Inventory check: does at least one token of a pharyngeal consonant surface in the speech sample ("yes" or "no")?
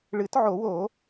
yes